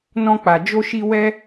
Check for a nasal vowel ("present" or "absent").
present